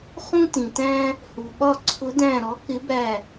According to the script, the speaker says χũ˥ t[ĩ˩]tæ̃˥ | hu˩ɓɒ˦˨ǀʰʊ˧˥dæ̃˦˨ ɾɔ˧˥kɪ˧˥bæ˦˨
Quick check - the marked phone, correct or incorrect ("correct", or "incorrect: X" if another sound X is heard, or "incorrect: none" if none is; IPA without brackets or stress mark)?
correct